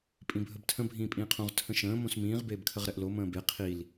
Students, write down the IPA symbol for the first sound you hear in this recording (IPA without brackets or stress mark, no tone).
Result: pʼ